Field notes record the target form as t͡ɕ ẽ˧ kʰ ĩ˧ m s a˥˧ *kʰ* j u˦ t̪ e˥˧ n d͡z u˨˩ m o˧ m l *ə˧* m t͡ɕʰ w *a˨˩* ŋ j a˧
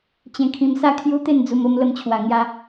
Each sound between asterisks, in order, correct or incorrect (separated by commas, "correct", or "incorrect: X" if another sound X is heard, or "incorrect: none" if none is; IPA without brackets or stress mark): correct, correct, correct